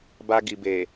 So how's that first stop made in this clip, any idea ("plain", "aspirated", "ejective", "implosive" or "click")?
plain